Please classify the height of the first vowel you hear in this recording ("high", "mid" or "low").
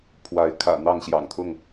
low